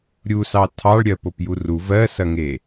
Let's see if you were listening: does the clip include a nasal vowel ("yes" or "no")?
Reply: no